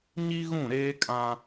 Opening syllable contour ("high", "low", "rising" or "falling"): high